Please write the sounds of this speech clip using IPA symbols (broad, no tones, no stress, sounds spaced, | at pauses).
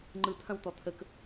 ŋ͡ǃ ɯ t̪ʰ ɐ̃ w t̪ ɔ t̪ʰ ə k